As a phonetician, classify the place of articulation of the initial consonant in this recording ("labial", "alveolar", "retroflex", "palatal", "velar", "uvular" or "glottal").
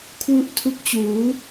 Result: velar